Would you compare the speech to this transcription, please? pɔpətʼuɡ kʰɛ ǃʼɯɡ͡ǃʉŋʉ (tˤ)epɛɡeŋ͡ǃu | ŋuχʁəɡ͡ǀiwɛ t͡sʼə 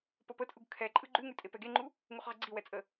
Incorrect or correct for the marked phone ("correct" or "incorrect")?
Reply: incorrect